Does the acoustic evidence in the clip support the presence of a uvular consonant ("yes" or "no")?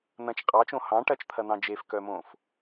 yes